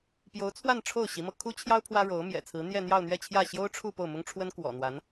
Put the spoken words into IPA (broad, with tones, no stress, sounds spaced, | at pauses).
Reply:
p j o˧˥ ʊ̯ t͡sʰ w a˥˧ n ʈ͡ʂʰ o˥˩ ʊ̯ ɕ i˧˥ m ɤ˧ kʰ u˥ t͡ɕʰ j ɑ˥ ʊ̯ pʰ w ä˥ ɻ o˧˥ ʊ̯ m j ɛ̰˨˩ t͡sʰ ɹ̩˧˥ n̪ j ɛ˥˧ n̪ j ɑ˥˧ ʊ̯ n̪ ɥ ɛ˥˧ t͡ɕʰ j ä˥˩ ɕ j o˥ ʊ̯ ʈ͡ʂʰ u˥˧ p o˥˩ ʊ̯ m ʊ˥ ŋ ʈ͡ʂʰ w ə˥ n k w ɔ̰˨˩ n̪ w a˧˥ n